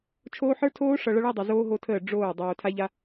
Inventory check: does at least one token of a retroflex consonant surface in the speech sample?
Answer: yes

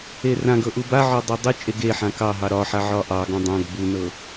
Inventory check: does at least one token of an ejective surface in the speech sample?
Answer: yes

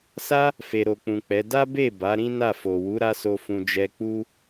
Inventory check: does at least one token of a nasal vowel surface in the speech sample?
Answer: yes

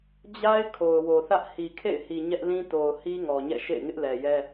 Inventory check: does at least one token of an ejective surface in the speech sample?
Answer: no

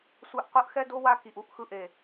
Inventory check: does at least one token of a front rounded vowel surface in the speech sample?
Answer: no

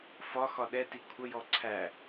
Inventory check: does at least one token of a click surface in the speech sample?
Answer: yes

